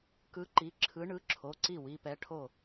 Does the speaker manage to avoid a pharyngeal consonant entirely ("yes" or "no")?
yes